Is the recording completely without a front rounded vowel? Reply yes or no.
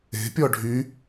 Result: no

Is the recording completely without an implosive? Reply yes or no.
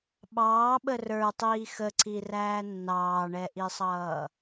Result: no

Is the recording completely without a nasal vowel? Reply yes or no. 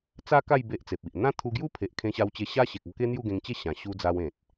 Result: no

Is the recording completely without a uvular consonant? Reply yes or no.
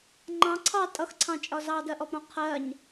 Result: no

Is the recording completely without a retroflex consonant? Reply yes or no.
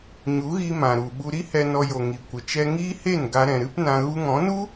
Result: yes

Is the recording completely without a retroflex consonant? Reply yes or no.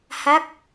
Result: yes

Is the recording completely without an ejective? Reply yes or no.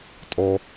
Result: no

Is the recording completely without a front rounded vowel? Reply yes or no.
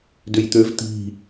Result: no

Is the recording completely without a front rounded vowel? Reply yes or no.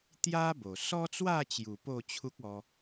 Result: yes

